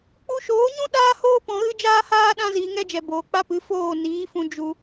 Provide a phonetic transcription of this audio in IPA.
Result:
k͡p u˧ ʃ oː˨˦ ɲ ũ˦ ɗ aː˦ h oː˦ p ɔ̃˧ ɣ ɨ˦ d͡ʒ aː˦ h aː˦ ɗ ã˦ z iː˧ ŋ ɛ˦ d͡ʒ ɛ˨ b oː˨ k͡p a˦ p ɨ˨˦ f oː˦˨ n iː˨˦ f ũ˧ d͡ʒ u˧

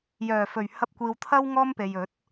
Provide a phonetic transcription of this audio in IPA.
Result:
j œː˨˩ f ɵ˨˩ ɥ h ɐ˧ p̚ kʷ iː˨ w t̪ʰ ɐ˥ w ŋ ɔː˥ m p e˨ j ɵ˨˥ t̚

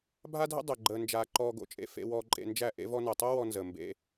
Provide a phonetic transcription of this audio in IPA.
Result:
bʱ a˦ dʱ ə̰˦ dˤ ə˨ ɡ͡ǃ əː˧ n d͡ʒ aː˧ ǃ ɔː˧ ɡ o̰˨ t͡ʃʼ ḛ˧ f ḛ˧ w ɔː˧ ǃʼ ḛ˧ n d͡ʒ æ˦˨ ʔ ḛ˧ v ɔ˧ n əː˨ tˤ o˦ w ɔ˧ n z əː˨ m b ḛ˧

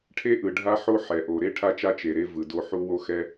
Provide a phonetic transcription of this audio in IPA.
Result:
ʈʰ e˥ ʔ ɯ˩ ɖʱ a˥ ħ o˥ ħ ɛ˩ ʔ o˩ ɾ e˥ ʈʰ a˥ t͡ʃ a˥ t͡ʃ e˩ ɾ e˥ v ɯ˩ d o˥ ħ u˥ w o˥ x ɛ˥

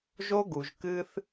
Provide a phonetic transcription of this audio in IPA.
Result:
ʒ o˦ ɡ u˨ ʒ k ɨ˧ θ

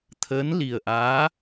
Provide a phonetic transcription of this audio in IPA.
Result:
t̪ʰ əː˧˥ n l i˨˩ ə̯ ʔ aː˧˥

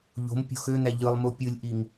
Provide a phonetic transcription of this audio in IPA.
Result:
ʎ o̤ m pʲ o̤ x ø n̪ æ ʎ ɯ lˠ m u pʲ ɯ lʲ ʔ i ŋ

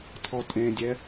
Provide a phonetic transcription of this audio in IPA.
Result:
tʰ ɔ tʼ ẽ dʲ ɛ

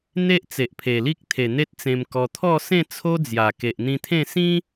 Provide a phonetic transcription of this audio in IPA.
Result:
n̪ e˦ ʔ t͡s e˨ ʔ pʰ e˨˩ l i˦ k̚ t̪ʰ e˨˩ n̪ e˦ t̚ t͡s ẽ˧ m k ɔ˧ t̪ʰ ɔ˥˧ s ẽ˥˧ t͡sʰ o˦ d͡z j a˨˩ k e˨ ʔ n̪ ĩ˧ t̪ʰ ẽ˥˧ s ĩ˦

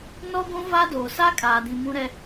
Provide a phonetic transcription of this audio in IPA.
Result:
n ɔ˦ ɡʷ ũ˦ v a˦ d oː˨ s a˦ kʼ aː˨ d ĩ˨ m ũ˦ ɾ ɛ˦

